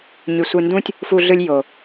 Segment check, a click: absent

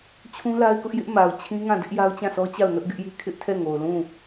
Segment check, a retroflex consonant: absent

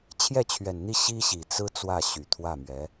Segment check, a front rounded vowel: present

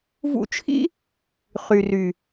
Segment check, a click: absent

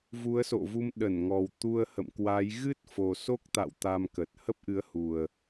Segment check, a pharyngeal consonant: absent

